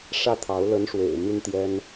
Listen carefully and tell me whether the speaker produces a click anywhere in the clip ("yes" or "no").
no